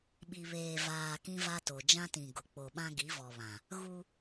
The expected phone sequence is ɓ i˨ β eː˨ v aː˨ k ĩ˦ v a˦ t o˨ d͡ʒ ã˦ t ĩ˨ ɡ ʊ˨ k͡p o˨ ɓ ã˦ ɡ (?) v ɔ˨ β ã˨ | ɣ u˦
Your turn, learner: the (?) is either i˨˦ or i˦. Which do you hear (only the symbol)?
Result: i˨˦